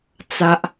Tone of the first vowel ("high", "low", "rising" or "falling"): high